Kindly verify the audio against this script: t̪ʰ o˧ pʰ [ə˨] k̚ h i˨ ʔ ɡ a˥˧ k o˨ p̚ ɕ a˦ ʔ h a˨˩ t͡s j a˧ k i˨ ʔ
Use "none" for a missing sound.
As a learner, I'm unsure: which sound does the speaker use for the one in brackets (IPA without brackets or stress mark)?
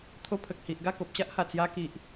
ə˨